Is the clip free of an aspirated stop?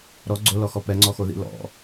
yes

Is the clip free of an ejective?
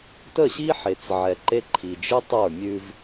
yes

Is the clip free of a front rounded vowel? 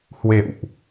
yes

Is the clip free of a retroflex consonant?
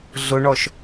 no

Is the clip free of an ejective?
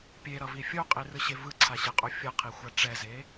no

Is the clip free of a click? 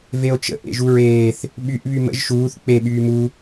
yes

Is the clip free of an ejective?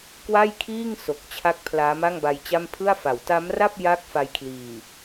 yes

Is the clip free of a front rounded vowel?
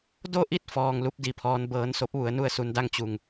yes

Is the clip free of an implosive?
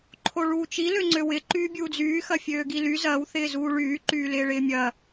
yes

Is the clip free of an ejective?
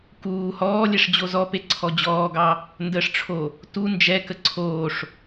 yes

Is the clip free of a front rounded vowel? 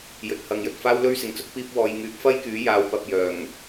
no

